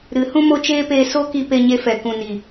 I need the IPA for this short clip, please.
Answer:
ɾ ɨ˨˦ h ũ˦ m o˦ t͡ʃ eː˦ p eː˧ s o˦ k i˧ p e˧ ɲ e˧ f ɛ˨ k ũ˨ n i˨

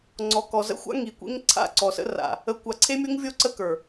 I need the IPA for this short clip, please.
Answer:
ŋ͡ǀ ɔ˨ k ɔ˨ z ə̰˦ xʷ a̰˦ ŋ i˨ kʷ ḛ˦ ŋ ǀʰ a̰˦˨ ǀ ɔ˨ s ə̰˦ r a̰˨ | ə˨ kʷ a˨ ǀʰ e˦ mʲ o˦ ŋ vʲ o˦ ǀ ə˦ k ə˞˨

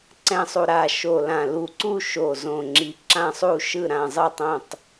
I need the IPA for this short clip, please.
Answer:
ǀ ɛ̃˨˩ sˤ u˨˩ ɾ a˨˩ ʃ o˨˩ l ã˨˩ l u˨˩ ǀ u˦˨ ʃ o˨˩ z õ˨˩ ŋ͡ǁ i˨˩ ǁ ã˦˨ sˤ u˦˨ ʃ ɯ˦˨ ɾ ã˦˨ zˤ ɯ˦˨ tˤ õ˦˨ tˤ

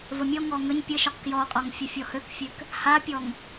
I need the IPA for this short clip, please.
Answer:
v ə mʲ ɔ ŋ ɔ ŋ ə ɲ pʲ ə ʃ o q k j ɔ qʼ ɔ ŋ fʲ ə fʲ ɔ h ø k fʲ ø k | h a pʲ ɔ ŋ

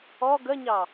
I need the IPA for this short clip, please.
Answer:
ɔ ɡ ə ɲ ɑ

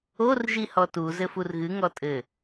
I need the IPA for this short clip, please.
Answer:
o r ʒ i h ɔ t u z ɘ f u r ɣ ɨ ŋ ɔ tʼ ɘ

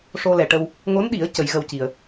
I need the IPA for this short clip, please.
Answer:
ʂ o˧ l ɛ˨˩ ʈ ə˧ w | ŋ o˧˥ n ɗ i˨˩˦ ə̯ c ə˨˩˦ j ɣ ə˧ w c i˨˩ ə̯

